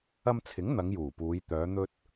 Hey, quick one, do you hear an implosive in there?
no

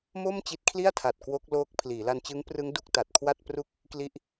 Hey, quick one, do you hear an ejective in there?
no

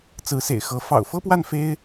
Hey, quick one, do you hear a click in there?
no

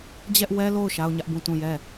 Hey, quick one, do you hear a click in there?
no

